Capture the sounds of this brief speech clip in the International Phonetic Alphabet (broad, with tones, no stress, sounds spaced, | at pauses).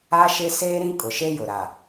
a˦ ʃ ɪ˦ s eː˦ ɾ ĩ˦ kʼ ʊ˨ ʃ e˦ j ʊ˨ ɾ a˨